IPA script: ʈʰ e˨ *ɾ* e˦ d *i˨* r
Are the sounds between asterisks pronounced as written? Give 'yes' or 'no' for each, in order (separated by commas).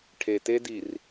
no, yes